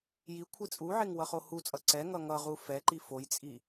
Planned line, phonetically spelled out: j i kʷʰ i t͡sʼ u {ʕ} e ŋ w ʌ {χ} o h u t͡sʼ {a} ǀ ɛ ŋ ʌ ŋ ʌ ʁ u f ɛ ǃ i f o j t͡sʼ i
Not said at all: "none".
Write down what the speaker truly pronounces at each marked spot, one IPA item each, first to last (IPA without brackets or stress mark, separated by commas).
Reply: ʕ, χ, ʌ